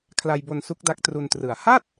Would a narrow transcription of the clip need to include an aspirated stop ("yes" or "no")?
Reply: yes